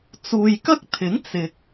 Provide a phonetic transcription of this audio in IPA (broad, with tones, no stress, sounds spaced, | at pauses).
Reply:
t͡s uː˨ j k ɐ˥ k̚ t̪ʰ ɪ˨˥ ŋ t͡s ɪ˨ k̚